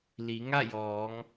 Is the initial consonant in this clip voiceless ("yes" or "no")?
no